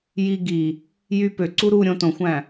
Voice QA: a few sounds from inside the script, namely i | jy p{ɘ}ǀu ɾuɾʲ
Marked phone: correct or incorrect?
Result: incorrect: ø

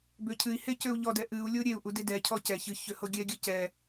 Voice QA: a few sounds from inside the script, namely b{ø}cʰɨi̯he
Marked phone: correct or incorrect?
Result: correct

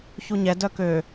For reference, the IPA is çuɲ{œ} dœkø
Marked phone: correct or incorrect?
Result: incorrect: ɛ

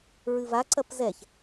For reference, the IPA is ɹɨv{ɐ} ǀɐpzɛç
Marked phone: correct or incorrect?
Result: incorrect: a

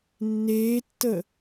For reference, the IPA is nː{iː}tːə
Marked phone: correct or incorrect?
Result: incorrect: eː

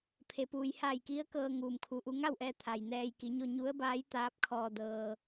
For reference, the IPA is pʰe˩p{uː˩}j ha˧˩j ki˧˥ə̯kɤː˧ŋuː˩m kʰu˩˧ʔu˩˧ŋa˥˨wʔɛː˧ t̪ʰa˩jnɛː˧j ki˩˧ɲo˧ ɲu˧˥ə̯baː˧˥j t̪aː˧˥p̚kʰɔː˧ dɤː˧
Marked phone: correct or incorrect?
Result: correct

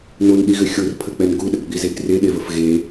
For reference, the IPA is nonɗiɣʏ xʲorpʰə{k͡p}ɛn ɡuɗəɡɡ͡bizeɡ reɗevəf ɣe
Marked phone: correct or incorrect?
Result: correct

